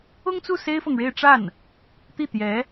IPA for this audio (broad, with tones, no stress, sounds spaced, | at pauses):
ʊ˥ ŋ t͡s u˥˩ s e˥ ɪ̯ f ɤ˨ ŋ ɻ e˥˧ ɪ̯ ʈ͡ʂ a˥˩ n | t̪ i˥˩ t̪ j ɛ˧˥